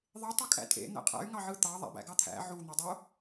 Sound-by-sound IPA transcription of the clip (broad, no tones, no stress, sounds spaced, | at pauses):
ðˤ e tˤ e kʼ æ̰ tʼ ḛ n̪ æ̰ qʼ æ̰ y̯ ŋ ɑ ʕ ɯ t̪ ɑ ðˤ æ̰ b æ̰ ɡ ɑ t̪ʰ æ̰ ʕ u n̪ o dˤ o